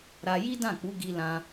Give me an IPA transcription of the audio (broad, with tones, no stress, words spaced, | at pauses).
ɾa˧ji˦dã˦˨ k͡pu˨˦ɡi˧lã˧